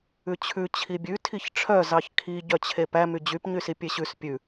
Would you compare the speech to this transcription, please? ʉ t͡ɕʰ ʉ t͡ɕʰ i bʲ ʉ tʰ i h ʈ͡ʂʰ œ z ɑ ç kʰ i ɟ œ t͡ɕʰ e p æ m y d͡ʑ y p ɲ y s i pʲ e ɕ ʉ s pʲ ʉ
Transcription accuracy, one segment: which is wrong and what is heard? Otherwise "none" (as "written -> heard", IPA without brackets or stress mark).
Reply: h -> ç